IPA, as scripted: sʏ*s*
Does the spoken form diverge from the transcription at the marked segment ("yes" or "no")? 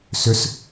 no